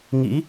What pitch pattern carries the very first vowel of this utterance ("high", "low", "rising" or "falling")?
rising